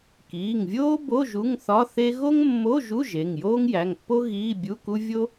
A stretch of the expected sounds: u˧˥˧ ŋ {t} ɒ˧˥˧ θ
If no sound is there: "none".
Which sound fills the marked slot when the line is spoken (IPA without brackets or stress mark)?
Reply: θ